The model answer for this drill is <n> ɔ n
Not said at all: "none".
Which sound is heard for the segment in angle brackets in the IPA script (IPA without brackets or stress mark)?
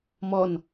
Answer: m